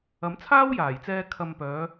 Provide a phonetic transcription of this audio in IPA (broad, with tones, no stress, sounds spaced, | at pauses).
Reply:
ɐ˨˥ m t͡sʰ aː˥ w j aː˨˩ j t͡s ɛː˧ kʰ ɐ˧ m p œː˨˧